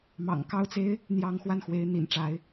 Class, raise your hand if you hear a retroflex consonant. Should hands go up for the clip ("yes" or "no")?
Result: yes